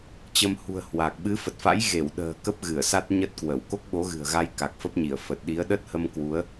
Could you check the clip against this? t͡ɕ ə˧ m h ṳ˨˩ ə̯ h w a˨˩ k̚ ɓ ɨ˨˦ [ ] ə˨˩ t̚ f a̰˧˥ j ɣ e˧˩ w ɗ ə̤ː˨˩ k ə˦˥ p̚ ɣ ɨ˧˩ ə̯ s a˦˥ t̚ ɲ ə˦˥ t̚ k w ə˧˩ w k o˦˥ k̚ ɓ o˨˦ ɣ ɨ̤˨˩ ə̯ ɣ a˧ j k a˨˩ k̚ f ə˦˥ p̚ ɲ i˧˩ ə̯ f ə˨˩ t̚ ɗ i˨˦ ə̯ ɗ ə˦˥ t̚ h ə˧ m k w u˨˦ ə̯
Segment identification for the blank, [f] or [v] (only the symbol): f